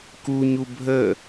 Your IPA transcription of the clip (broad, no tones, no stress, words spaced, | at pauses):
kuɲu bʱə